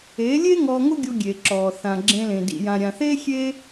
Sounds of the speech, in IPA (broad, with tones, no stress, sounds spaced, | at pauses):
eː˨˦ lʲ e˦ ŋ ɔː˧ ŋ ʊ˦ ɡʲ o˧ ɡʲ e˨ ǁ ɔː˨ θ ã˨ ɡ͡ǁ ẽ˧ l ẽ˨ d ḭ˨ j ã˨ ɾʲ ã˨ θ eː˦ xʲ e˦